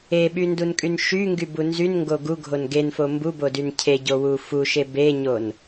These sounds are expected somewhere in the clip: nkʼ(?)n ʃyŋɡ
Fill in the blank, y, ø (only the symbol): y